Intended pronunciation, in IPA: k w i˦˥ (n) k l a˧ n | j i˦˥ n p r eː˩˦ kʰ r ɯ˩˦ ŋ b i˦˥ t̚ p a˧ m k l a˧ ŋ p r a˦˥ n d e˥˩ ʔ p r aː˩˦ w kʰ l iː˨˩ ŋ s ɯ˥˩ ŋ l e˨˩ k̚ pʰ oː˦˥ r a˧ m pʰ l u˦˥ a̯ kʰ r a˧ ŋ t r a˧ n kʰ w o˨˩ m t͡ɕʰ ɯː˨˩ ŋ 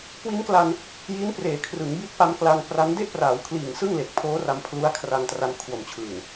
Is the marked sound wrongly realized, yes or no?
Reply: no